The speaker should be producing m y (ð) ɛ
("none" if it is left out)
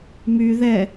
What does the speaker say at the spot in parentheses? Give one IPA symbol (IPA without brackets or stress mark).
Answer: ð